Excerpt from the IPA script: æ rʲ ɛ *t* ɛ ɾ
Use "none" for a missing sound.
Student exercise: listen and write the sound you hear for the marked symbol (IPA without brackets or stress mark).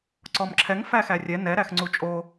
n